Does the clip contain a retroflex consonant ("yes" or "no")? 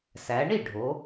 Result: yes